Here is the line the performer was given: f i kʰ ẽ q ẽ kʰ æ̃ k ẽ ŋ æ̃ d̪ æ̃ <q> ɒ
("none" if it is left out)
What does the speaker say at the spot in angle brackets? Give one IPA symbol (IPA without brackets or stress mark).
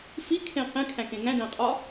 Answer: qʼ